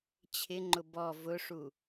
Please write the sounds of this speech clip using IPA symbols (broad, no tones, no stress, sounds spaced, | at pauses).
t͡ɕʰ ɪ ŋ͡ǃ ʊ b ɔ v ʊ ʂ u